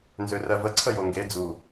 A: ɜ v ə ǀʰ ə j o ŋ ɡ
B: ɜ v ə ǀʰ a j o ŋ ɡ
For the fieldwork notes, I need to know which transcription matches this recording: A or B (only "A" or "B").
A